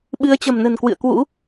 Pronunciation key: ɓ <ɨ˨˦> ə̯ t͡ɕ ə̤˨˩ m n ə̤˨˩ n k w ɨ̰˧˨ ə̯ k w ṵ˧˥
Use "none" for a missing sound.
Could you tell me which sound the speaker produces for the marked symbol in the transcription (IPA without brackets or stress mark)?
ɨ˨˦